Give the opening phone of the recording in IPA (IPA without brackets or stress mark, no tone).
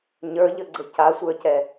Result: ɲ